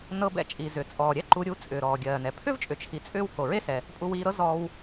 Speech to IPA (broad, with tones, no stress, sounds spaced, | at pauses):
n ɤ˧ b ɛ̰˧ t͡ʃʼ i˩ z ʏ˩ t͡sʼ ɔː˩ ɾʲ ɛ˥ ǃ u˧ ɾʲ u˧ t͡sʼ ʏː˩ ɾ ɔː˩ ɡʲ ɜː˩ n ɛ˩ pʰ ʏ˥ v t͡ʃʼ ʏ˩ t͡ʃʰ i˩ t͡sʼ ʏː˧ w k o˩ ɹ e˥ s ɛ˩ | pʼ u˧ w iː˧ ɾ ɤ˥ z ɔː˧ w